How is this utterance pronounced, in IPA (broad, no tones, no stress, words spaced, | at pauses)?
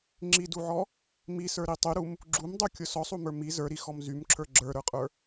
ŋ͡ǁiduʕɔ | misə˞ɾi tˤyɾum | ɡ͡ǁumdˤukʲʊ sɔsˤumə˞ mi zə˞ɾixɔm zymǁʰə˞ ɡ͡ǁə˞ɾə˞qʼə˞